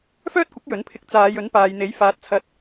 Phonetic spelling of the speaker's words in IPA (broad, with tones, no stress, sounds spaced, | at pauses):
f œː˥ t̚ kʷ ɪ˨˥ k̚ j ɵ˨˥ n pʰ ɪ˧ k̚ t͡s aː˨˧ j ɵ˨˥ n p aː˨ j n̪ e˨˥ j f aː˨ t̚ t͡sʰ ɐ˧ t̚